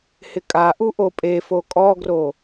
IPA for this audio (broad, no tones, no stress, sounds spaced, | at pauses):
h ɪ kʼ a ʔ u ʔ o pʼ e f o kʼ ɔ ɡ r o